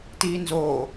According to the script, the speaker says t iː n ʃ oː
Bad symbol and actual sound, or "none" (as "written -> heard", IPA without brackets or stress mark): ʃ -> z